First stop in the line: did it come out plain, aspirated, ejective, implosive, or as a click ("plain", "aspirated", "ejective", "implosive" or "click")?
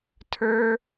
aspirated